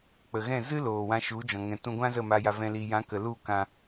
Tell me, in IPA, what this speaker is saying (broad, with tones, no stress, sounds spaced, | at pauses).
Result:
k͡p ə˨ ɣ ɛ̃˦˨ z ɨ˦ l oː˨ w ã˧ ʃ u˨˦ d͡ʒ ɔ̃˨ ŋ ɛ̃˨ t ũ˧ ɡʷ ã˦ z ə˦˨ m a˧ j a˧ v ɛ̃˧ l i˨ j ã˨˦ k ə˨ l u˦˨ k ã˧